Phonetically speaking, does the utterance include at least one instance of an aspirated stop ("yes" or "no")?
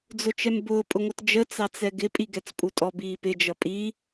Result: no